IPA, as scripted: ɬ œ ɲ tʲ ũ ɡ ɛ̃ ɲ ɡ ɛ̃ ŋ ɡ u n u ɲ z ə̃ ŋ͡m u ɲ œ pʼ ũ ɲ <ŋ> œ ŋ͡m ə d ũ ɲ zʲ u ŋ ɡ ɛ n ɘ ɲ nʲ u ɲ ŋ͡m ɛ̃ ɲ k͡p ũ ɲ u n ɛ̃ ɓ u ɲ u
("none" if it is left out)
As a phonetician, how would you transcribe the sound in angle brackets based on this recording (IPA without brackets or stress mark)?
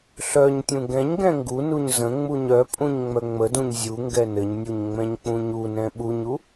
ŋ͡m